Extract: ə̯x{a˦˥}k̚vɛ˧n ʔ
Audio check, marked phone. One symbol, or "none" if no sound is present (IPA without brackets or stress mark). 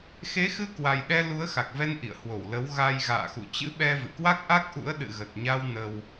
a˨˩